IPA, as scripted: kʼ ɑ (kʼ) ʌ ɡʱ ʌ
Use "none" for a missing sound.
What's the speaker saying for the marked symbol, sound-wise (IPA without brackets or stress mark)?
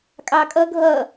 kʼ